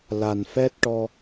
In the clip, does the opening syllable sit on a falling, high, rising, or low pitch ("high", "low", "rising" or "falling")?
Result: low